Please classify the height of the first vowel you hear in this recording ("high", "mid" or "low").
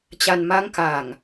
low